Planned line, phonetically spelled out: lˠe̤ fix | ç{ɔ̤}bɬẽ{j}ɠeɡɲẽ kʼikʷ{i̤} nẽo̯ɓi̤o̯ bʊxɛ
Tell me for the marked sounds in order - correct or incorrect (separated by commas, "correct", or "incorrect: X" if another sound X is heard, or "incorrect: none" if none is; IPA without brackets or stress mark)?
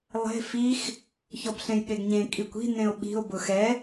incorrect: ɔ, correct, correct